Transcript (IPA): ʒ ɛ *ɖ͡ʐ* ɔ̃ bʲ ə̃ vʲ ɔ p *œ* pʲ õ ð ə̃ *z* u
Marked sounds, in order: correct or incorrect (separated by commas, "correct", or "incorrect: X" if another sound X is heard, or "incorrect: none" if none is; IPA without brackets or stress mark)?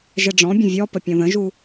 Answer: correct, incorrect: ə, incorrect: ʒ